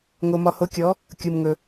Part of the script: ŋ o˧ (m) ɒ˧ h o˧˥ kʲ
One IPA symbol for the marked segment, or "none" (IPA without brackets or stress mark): m